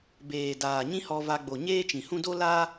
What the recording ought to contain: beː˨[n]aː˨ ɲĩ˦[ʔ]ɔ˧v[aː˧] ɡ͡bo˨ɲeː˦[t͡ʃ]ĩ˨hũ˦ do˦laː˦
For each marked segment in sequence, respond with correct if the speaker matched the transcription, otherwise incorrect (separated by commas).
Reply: incorrect, incorrect, incorrect, correct